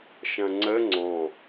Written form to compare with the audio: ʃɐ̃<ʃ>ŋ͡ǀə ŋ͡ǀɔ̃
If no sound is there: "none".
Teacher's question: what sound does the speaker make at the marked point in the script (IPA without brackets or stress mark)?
none